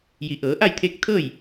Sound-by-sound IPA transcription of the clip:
ji˩˧ʔɤː˩˧ʔa˥˨jt̪ʰeː˧˥k̚ t̪ʰɤː˥˨j

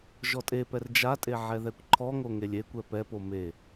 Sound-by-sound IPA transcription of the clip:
ʒɔtʼepɛr d͡ʒatʼe ʕɛðɛkʷǃʰɔŋo ŋelʲekʷɛ pɛpo me

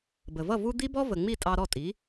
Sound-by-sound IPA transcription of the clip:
bə˩vʌ˥˩ vu˧ d̪i˥bɔ˥ və˩ŋ͡mi˥˩ tʼɑ˧ɾɔ˥˩tʼi˩˥

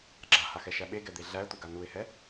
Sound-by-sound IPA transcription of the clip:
ɡ͡ǁahaxɛʃæ ɓeɡɛd̪e ɮæə̯t̪uɡa nuɪ̯hɛ

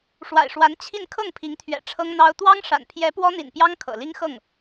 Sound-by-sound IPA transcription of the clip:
ʂwa̰˨˩ɪ̯ʂwa˧˥n t͡ɕʰi˥˧n kʰɤ˥˩ŋpʰi˧˥ŋt̪ʰɥɛ̰˨˩ ʈ͡ʂʰɤ˥ŋn̪ɑ˥ʊ̯ t̪wɑ˥ŋʂa̰˨˩npʰjɛ˧˥ pwɔ˥n̪ḭ˨˩npjɑ˥ŋ kʰɤ̰˨˩li˥ŋ xɤ˥˩ŋ

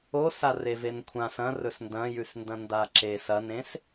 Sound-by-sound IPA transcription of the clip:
osa revenkʷʰãs ɐ̃ rɵsndɐ̃jʉsndɐ̃ ndaǁes ɐnẽs

